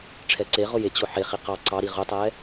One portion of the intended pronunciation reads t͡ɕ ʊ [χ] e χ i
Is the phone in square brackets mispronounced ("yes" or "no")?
yes